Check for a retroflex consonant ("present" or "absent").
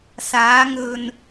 absent